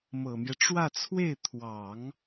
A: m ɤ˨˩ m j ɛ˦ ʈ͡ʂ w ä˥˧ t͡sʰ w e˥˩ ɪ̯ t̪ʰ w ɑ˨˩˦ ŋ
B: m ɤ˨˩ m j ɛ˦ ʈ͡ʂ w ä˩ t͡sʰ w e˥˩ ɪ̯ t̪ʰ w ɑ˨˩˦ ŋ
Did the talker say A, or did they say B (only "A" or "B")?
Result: A